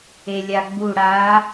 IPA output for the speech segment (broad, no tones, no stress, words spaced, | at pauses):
elʲaɡ͡bu ɽa